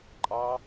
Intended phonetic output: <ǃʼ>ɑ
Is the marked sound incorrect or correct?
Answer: correct